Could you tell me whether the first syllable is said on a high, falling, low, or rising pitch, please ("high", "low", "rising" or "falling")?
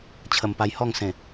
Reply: low